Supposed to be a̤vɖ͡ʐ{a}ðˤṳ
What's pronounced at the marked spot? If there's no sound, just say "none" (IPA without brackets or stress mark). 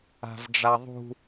a